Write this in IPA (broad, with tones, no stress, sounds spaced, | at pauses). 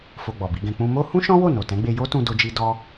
f o˧ ɡ͡b ɔ˨ b i˨˦ ɡ ɛ̃˧ k͡p ũ˧ m o˦ h ũ˦ ʃ ɔ̃˦ w o˦˨ n o˨ t ɛ̃˨˦ ɡ͡b e˧ j o˦ t ũ˧ d o˦ d͡ʒ i˦ d ɔ˦